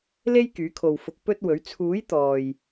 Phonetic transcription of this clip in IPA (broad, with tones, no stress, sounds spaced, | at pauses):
l e˥ j k yː˨˥ kʰ o˨ w f ʊ˧ k̚ p ɵ˥ t̚ w ɵ˨˥ ɥ t͡sʰ uː˨˥ j t̪ ɔː˨ j